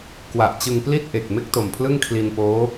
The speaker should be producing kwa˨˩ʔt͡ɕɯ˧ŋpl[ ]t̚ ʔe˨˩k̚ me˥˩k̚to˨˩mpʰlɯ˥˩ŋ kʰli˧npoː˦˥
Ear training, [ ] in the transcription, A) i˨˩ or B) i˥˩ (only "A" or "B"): B